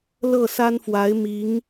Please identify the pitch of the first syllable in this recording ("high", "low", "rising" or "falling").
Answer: falling